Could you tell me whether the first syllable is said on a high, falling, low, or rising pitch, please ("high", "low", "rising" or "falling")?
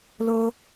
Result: high